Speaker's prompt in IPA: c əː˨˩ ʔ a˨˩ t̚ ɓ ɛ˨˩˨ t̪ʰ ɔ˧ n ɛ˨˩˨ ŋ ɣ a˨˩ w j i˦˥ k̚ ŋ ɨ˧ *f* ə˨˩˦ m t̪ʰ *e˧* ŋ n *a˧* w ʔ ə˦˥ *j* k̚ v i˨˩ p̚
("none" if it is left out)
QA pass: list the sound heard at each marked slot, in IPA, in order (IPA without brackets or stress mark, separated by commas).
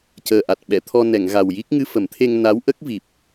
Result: f, e˧, a˧˥, none